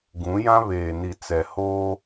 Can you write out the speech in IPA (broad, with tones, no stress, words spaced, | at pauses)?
ɡũ˨˦jã˦ βeː˨ni˨ t͡sɛ˨hoː˦